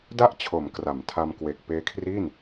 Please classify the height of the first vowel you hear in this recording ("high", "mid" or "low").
low